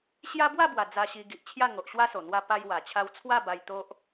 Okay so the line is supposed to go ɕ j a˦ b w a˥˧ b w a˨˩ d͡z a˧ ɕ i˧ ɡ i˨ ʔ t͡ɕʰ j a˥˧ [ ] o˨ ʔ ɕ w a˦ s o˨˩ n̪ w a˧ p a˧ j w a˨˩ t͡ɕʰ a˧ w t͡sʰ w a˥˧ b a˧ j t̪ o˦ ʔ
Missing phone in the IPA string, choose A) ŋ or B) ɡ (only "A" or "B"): A